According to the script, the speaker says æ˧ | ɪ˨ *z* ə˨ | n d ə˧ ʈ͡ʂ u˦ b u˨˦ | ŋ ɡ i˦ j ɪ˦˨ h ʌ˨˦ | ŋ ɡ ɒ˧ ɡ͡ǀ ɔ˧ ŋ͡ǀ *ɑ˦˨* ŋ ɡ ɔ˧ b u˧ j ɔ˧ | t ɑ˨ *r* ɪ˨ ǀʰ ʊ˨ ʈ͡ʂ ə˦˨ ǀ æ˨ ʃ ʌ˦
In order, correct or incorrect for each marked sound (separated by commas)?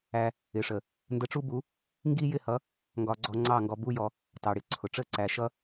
incorrect, correct, incorrect